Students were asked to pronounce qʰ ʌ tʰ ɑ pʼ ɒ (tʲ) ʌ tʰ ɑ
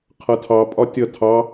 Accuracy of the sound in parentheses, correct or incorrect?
correct